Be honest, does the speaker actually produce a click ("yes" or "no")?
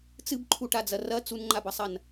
yes